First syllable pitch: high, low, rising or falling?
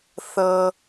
low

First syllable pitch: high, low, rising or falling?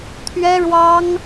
high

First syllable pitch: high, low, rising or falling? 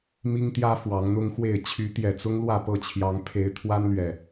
high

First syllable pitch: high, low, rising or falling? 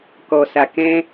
low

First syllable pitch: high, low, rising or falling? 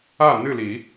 falling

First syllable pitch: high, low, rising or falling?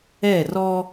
falling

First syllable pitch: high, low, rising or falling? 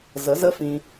rising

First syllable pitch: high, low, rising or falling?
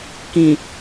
low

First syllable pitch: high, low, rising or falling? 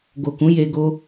low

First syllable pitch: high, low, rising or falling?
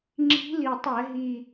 rising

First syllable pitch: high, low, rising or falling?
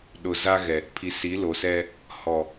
low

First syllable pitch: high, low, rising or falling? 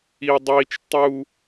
high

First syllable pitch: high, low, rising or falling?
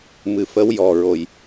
low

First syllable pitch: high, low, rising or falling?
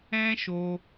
high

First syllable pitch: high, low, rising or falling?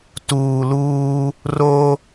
low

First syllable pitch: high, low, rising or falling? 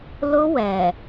high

